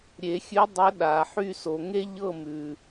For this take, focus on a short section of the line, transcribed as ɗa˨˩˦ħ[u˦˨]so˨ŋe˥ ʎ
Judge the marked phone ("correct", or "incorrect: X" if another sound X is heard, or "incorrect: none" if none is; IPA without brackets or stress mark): incorrect: y˦˨